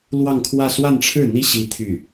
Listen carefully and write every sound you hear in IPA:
l w ɑ˥˧ ŋ kʰ w ä˥˧ s w a˥˧ n ʈ͡ʂʰ ɻ̩˥˩ n̪ i˥ ɕ i˥ t̪ʰ y˥˩

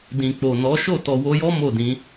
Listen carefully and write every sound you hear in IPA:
d ĩ˨ k͡p o˨ n ɔ˨˦ ʃ o˦˨ t ɔ˨ w o˧ j ɔ˦ m o˦˨ d ĩ˨˦

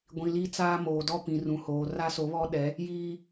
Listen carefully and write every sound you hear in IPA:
ɡʷ ĩ˨ l i˦ t͡s aː˦ m oː˨ d ɔ˦ p ĩ˨ r ũ˨ h oː˨ r a˦ s o˨˦ β ɔ˦ ɗ ɛ˨˦ | j iː˦

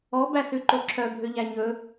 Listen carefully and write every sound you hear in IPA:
ɔ b æ s ʉ ǃ o ǁʰ œ bʱ ø ʎ æ ɲ ɵ

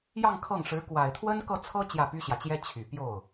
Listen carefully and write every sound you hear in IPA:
j ɑ˥˧ ŋ kʰ ɤ˥˩ ŋ ʂ ɻ̩˧˥ k w a˨˩ ɪ̯ t̪ʰ w ə˥ n k ɤ˥˩ t͡sʰ ɤ˥ t͡ɕ j ä˥˩ p y˥ ɕ j ä˨ t͡ɕ j ɛ˥ t͡ɕʰ y˨˩ p j o˥˩ ʊ̯

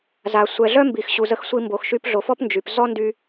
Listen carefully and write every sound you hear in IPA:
z a˨ sʷ ɛ˨ ɮ œ˦ m b i˨ x ɕ u˨ z ə˧ x sʷ i˧ m b o˨ x ʃ y˧ p ɮ o˨ f ɔ˦ p n d͡ʒ y˨ p z ɔ˦ n d y˧

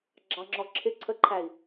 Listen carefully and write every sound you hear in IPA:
ɡ͡ǁ ɑ ŋ͡ǁ ɔ ǁʰ ɪ ǀʰ ə ǃʰ æ i̯

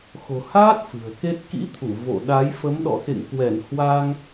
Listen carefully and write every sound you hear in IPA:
x o̤˨˩ h aː˦˥ t̚ f ɨ̤˨˩ ə̯ k e˦˥ t̚ k ḭ˧˥ t̪ʰ u˧˩ v o̰˧˨ ɗ a˨˦ j f ə˨˦ m ɗ ɔ̰˧˨ x ḛ˧˨ ŋ k w ɛ˧˩ n h w a˧ ŋ

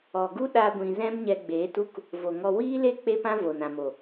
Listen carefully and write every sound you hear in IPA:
ɔ˨ ɡ u˦ ɗ a˦ ɡʷ ĩ˧ z ɛ̃˦ m ɲ ɛ˧ ɡ͡b eː˨˦ t u˦ k | v o˨ ŋ ɔ˧ w iː˦ l e˦ k͡p e˦ p ã˦ v o˨ n ã˨ m o˨

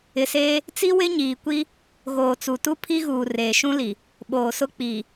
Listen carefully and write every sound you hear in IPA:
ɪ˨ s eː˦ | t͡s i˦ w ɪ˦ ɲ iː˨ kʷ i˦ | ɣ oː˨ t͡s u˨ t u˦ pʰ i˦ ɣ uː˨ r eː˨ ʃ ũ˦ l i˨ | ɓ oː˨ s ʊ˦ k͡p iː˨

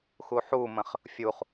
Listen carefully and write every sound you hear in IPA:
x u ħ u m ə̃ χ | fʲ u χ

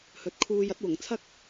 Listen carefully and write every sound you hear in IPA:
h ɵ˨˥ t̚ kʰ uː˧ j ɐ˥ t̚ w ʊ˨˩ ŋ t͡sʰ ɐ˥ k̚

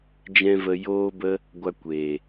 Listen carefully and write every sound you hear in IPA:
d͡ʒ ɛ̃˦ v ə˧ j oː˦ b ə˦ | ɡʷ a˧ kʷ eː˨

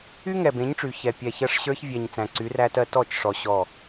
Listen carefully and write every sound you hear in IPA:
y˦ ŋ ɛ˨ b ẽ˨˦ ɲ ʈ͡ʂ y˨ ç ɛ˨ pʲ ɛ˨ ç ɜ˦˨ ʂ ɕ ə˞˦ ç vʲ ɛ˨ ɲ t͡s æ̃˨ ǀ y˨˦ r æ˦ t ɜ˦ t ɔ˦˨ t͡ʃ ʂ ɔ˨ ɕ ɔ˦˨

